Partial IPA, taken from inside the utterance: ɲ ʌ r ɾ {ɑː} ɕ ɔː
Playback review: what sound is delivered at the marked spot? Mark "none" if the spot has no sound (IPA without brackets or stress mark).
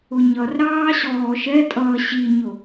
ɑː